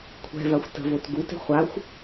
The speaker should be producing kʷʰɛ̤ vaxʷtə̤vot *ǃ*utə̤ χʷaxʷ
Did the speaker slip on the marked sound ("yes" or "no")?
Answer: yes